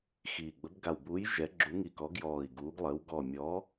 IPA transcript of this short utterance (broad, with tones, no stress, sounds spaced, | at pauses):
x iː˧˩ ɡ͡b ə˨˥ b ɡ a˧˩ w b uː˨˥ j ʒ ɛ˨˥ ɡ͡ǁ u˨˥ ŋ i˧˩ k ɔ˨˥ ɡ j ɔː˧˩ i̯ ɡ uː˨˥ ɡ lˠ əː˨˥ w ɡ ɔ˧˩ mʲ ɔ˨˥